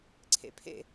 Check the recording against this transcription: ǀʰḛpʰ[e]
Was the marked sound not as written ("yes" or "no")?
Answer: yes